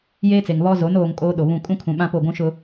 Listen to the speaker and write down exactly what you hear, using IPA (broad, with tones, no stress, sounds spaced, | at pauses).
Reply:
j eː˦ t͡s e˨ ŋ β ɔ˦ z o˨˦ n oː˨ ŋ kʼ oː˦ ɗ o˨ β ũ˦˨ kʼ ũ˦ kʰ ũ˨ ɓ ã˦ p o˦˨ ɡʷ ũ˦ ʃ ʊ˦